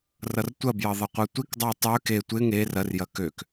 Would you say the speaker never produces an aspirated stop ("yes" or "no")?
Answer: yes